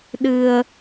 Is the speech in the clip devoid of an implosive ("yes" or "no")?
no